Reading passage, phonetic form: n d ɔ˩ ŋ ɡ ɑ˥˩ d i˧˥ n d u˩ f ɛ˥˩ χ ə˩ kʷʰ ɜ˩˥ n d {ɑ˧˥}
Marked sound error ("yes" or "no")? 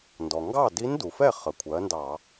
yes